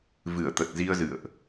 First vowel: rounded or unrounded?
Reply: unrounded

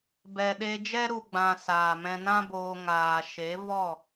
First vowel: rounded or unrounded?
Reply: unrounded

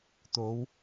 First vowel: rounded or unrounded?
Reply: rounded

